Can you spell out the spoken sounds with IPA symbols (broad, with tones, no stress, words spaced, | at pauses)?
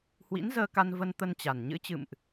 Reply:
hwḭ˧˥nzəː˧ka˧nvə˧n t̪ə˧nt͡ɕa˨˩nɲɨ̰˧˥ t͡ɕɨ̰˧˨mʔ